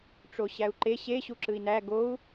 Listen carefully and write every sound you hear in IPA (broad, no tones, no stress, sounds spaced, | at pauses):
ʈ͡ʂ o ɕ æ u̯ ǃ e ɕ e ɕ u ǁ ɯ i̯ n æ ɡ o u̯